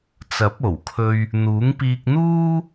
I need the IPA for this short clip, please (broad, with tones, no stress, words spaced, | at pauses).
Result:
t͡sɐ˨˥p̚ o˨˩wkʰɵ˧ɥ | n̪uː˨˥ŋpiː˧k̚n̪uː˥